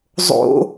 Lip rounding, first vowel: rounded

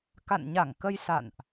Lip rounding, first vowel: unrounded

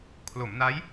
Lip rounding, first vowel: rounded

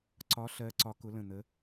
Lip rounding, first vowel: rounded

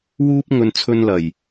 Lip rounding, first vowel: rounded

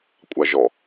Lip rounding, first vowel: unrounded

